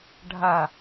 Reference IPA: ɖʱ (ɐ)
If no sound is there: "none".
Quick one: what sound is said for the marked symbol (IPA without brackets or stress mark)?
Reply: ɐ